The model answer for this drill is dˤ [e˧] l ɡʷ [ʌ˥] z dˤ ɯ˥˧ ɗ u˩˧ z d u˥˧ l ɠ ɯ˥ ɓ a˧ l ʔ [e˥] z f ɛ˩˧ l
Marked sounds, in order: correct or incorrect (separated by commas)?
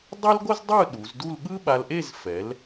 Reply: incorrect, correct, incorrect